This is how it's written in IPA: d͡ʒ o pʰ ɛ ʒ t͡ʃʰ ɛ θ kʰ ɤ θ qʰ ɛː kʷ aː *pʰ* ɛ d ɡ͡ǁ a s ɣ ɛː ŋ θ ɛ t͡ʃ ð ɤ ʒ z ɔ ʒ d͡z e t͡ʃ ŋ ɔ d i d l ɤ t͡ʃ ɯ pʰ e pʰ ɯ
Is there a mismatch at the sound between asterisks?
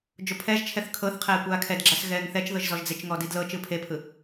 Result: yes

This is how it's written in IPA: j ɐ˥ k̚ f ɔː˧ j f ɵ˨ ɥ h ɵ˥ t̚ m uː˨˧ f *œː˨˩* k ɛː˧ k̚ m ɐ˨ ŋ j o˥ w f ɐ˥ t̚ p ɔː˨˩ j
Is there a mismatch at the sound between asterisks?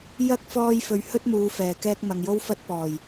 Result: yes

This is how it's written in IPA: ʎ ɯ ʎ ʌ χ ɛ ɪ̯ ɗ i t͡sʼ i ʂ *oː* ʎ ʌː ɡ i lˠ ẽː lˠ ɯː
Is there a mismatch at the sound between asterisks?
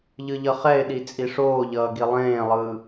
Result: no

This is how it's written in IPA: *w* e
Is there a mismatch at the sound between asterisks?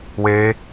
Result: no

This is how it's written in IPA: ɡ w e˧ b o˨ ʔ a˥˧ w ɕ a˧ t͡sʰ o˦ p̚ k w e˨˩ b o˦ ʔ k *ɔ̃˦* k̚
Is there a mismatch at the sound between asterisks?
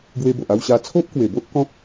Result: no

